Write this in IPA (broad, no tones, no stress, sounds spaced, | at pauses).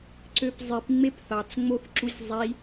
ǀ ø p zˤ i p ŋ͡m e p θ ɑ t͡s ŋ͡m o θ ǁ u sʲ zˤ i